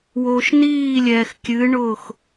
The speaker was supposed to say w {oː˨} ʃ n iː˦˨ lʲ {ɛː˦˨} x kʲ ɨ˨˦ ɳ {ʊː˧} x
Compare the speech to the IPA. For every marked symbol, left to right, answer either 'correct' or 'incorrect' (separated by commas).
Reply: correct, incorrect, incorrect